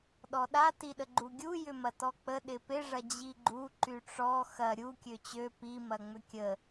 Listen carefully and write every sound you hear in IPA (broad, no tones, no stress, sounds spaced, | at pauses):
ɗ ɔ ɗ a t i ɗ ə ɡ͡ǃ u ɡʲ u j ʏ m ɐ t ɔ k͡p ə ɗ ɪ p ɪ ʐ ɐ d͡ʑ i ɡ͡ǃ u ǃ y ʈ͡ʂ ɔ x ɐ ɾʲ u kʲ ø t͡ɕ ø p i m ɐ ŋ͡m ʏ kʲ ə